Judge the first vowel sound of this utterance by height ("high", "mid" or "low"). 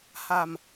low